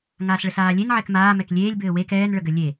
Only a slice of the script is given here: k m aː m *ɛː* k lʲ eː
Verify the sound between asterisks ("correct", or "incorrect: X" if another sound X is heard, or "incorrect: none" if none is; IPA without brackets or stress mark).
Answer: incorrect: ɛ